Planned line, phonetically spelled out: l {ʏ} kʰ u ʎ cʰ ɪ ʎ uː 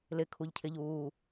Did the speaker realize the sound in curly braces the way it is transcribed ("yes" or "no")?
no